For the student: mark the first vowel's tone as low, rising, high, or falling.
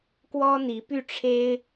high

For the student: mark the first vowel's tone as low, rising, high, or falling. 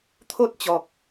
high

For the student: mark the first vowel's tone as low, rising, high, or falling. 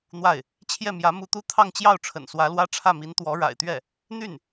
falling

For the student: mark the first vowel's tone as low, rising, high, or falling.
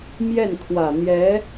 falling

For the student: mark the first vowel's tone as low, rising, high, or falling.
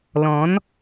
rising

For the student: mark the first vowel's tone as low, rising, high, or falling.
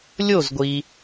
falling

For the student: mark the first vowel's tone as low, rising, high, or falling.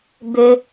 low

